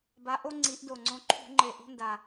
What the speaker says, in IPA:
ba˨˦ʔo˦ ŋ͡ǀi˨˦ʔdo˨˩ ŋ͡ǀõ˨˦ǃʰṳ˧˩˧ ŋ͡ǃe˨˩ʔo̤˦nda˨˩

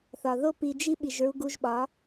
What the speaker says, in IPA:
θɒ˨ðo˦pi˧d͡ʒi˦ ɓi˨ʒɹu˧ɡu˧ʒɓɒ˨˦

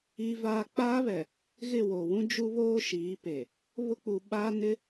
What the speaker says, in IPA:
iː˦vaː˦ k͡paː˦βɛ˨ | ɣɪ˦˨woː˨wũ˦ d͡ʒu˦βoː˦ ʃiː˨˦pe˨ | βʊ˦k͡pu˨ɓaː˦ nɪ˦

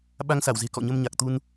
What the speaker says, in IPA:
ɓa˧ŋsa˧˩wze̤˨˩ kɔ̰˧˨ɲə˧mɲa˨˩k̚ t̪u˧n

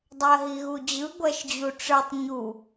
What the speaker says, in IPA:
dˤɜɦiɣud͡ʑɯ ɡʷɜʃd͡ʑuʈ͡ʂɯtˤ ɲu

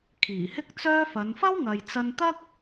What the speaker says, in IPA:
kʰiː˨˩hɪ˥k̚t͡sœː˥fɐ˨˧n fɐ˥wŋɐ˨jt͡sɐ˧nt̪ɐ˥k̚

